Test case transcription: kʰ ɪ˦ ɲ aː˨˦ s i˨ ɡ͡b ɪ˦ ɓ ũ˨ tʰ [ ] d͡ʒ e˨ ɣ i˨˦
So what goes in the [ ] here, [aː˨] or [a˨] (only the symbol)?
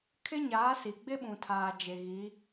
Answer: aː˨